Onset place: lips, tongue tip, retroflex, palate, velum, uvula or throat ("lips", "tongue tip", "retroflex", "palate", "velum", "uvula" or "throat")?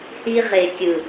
throat